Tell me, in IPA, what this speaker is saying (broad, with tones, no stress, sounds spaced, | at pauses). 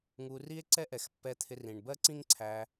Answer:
ŋ u˧ r i˦ e̯ ǀ ɛ˦ ʔ ɛ˨ x pː ɛ˧ t̪ʰ ɪ˧ r ĩ˨ ɳ b ɜ˦ ǀ ĩ˦ ŋ ǀʰ æ˧